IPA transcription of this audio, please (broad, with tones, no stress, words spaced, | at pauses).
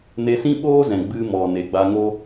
ne˧sĩ˦ɓoː˦zɛ̃˨ ɡ͡bɨ˧mɔ˨ ne˨ɡ͡ba˧ŋo˦